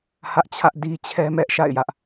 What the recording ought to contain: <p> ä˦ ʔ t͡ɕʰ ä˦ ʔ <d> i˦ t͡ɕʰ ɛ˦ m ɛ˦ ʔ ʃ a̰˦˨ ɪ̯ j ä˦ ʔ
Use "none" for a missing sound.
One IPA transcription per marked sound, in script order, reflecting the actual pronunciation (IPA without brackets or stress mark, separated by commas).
h, d